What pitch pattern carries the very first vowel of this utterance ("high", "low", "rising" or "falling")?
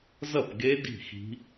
falling